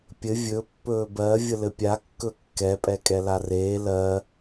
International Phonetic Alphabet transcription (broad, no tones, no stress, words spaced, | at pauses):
pʲɘ vʲɵ pːɵːbɜ vʲəlɘpʲa kːɵkːɛ pʼɛkʼɛlareː lɜ